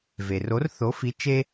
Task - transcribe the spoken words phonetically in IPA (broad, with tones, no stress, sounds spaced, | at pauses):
v e˩ r o˨˥ r θ o˨˥ f i˨˥ t͡ʃ e˦